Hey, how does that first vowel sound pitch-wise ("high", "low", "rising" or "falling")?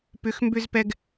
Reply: rising